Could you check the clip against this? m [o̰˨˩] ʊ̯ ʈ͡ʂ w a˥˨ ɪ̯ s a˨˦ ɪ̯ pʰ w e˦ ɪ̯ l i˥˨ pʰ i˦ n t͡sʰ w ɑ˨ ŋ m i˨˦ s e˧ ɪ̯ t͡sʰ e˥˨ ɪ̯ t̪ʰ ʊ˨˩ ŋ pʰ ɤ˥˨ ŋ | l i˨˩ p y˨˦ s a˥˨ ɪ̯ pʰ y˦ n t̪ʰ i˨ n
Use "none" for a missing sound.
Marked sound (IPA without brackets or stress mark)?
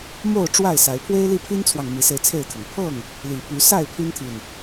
o˥˨